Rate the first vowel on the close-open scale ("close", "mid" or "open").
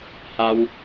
open